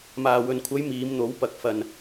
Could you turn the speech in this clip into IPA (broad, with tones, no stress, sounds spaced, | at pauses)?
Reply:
m aː˨ w ɵ˨ n kʷʰ ɐ˨˧ j m iː˨˧ m n̪ o˨˥ w p ɐ˨ k̚ f ɐ˨ n